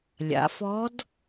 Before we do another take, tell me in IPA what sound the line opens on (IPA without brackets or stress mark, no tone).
lʲ